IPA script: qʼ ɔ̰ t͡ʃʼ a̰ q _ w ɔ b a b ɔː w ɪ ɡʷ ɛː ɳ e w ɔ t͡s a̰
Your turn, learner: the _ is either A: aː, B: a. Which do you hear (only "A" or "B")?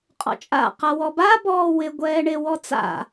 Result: B